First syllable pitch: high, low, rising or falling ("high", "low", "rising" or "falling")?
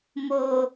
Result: high